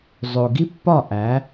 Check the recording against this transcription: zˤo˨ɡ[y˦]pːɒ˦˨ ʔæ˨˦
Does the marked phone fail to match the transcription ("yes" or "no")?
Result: yes